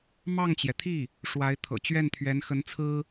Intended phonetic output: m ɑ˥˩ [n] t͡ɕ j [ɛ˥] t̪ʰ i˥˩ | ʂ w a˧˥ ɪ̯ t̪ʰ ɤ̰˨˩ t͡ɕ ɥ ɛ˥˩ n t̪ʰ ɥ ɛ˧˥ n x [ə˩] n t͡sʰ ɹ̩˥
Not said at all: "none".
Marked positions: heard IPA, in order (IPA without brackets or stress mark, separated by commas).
ŋ, ɛ˩, ə˧˥